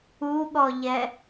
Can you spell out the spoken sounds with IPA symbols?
u ɠ ɔ ʎ ɛ

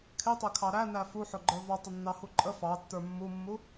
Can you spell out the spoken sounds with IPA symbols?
kʰ ɪ tˤ ɪ kʰ ɑ ɾ æ n æ f u ħ ʊ ɡ͡ǃ ə˞ v ɔ tˤ ɪ nː ɑ h u ǃʼ ə f ɑ tː ə˞ mː u mː u

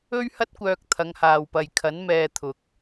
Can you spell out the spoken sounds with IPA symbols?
ɵ˥ ɥ h ɐ˥ t̚ kʷ œː˧ k̚ t̪ʰ ɐ˨˧ ŋ h aː˨ w p ɐ˨ j kʰ ɐ˨˥ n m ɛː˧ t̪ʰ ʊ˨ k̚

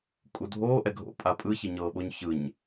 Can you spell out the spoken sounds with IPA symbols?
kʼ u dʱ oː ʔ ɛ ɡʱ o̰ pʼ a pʼ ɯ ç i ɲ ɤː ɓ o ɲ ç ɯ ɲ

